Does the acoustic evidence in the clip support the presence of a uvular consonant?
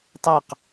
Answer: yes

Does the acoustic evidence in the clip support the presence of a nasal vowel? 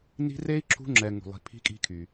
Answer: no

